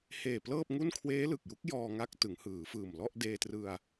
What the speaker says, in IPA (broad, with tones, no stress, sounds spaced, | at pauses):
h eː˨˩ p l ɤː˥˩ p̚ ŋ u˥˩ n kʰ w eː˦˥ l ɯ˨˩ k̚ j u˦˥ k̚ j ɔː˧ ŋ a˦˥ k̚ t ɯ˩˦ ŋ h ɯː˩˦ f ɯː˨˩ m l ɔ˥˩ ʔ d eː˧ t r ɯ˧ a̯